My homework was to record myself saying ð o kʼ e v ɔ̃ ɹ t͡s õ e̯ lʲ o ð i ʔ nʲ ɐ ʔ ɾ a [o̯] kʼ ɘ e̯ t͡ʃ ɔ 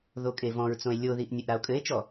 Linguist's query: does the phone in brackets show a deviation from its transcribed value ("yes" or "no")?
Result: no